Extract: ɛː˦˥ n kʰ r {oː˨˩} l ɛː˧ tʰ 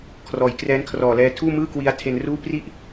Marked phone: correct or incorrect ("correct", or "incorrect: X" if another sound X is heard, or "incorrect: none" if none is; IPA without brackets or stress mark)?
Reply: incorrect: ɔː˨˩